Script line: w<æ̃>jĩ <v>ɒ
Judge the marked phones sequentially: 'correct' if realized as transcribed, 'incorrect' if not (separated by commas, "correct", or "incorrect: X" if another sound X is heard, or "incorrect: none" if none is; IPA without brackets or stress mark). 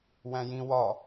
correct, incorrect: w